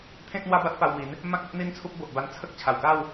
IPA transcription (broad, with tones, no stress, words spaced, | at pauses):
t̪ʰẽ˦k̚ n̪wa˦ba˦t̚pa˧wmi˨˦n | mã˦k̚o˦ʔ n̪i˦nt͡sʰu˦p̚bo˨ʔ ba˧nt͡sʰə˦k̚ t͡ɕʰa˨˩wka˥˧w